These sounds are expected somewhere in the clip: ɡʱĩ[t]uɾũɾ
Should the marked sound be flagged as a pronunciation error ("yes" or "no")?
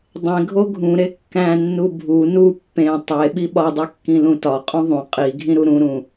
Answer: yes